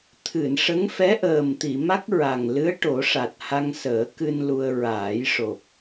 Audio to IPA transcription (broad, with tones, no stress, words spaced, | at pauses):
t̪ʰɨ˨˩˨n ʂə˧˥ŋfɛ˧˥ʔəː˨˩m t̪i˨˩˨ma˦˥k̚ ɹa˨˩ŋlɨ˧˥ə̯ ʈo˨˩˦ʂa˨˩t̚ ha˧ŋsəː˨˩˦kɨ˧n lu˧ə̯ ɹaː˨˩˦jʂo˨˩p̚